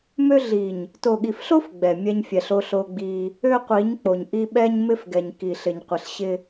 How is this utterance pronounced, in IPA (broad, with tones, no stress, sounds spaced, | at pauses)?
m ø˦ ɮ i˨ ɲ | t o˨ ɠ i˨ f ɬ o˦ f ɡ͡b ɛ˨ mʲ ɛ˦ ɲ fʲ ɛ˨ ɬ o˦ ɬ o˦ ɡ͡b i˦ | ø˦ qʷ i˨˦ ɲ k͡p o˨ ɲ ʔ i˦ ɓ ɛ˦ ɲ m ɪ˦ f ɡ ɛ˨ ɲ k i˨ ɬ ɪ˨ ɲ qʷ ɪ˨ ɬ ɕ ɪ˦